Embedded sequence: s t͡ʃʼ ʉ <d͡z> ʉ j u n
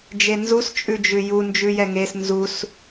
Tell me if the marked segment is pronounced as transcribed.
no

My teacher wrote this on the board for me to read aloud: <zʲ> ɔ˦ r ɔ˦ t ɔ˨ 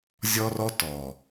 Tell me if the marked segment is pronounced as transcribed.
yes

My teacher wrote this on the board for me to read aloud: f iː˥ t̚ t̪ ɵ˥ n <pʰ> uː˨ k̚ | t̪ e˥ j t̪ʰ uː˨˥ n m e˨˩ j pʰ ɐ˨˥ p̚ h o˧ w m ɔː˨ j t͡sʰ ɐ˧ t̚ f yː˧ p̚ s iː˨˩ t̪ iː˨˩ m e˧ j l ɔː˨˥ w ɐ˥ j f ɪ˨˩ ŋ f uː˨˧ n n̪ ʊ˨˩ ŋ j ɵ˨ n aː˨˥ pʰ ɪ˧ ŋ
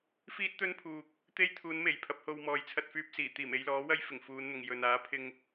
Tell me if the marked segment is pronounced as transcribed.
yes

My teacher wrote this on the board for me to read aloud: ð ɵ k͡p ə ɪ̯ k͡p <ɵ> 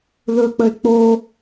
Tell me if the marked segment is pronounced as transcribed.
no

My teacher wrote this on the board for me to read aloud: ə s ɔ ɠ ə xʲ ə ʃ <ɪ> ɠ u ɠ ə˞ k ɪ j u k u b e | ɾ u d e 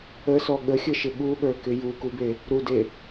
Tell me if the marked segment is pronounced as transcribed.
yes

